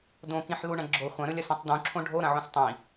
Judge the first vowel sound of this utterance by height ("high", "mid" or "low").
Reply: mid